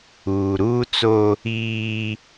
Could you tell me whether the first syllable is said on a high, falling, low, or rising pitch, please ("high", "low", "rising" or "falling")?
low